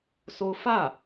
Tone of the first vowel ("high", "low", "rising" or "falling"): high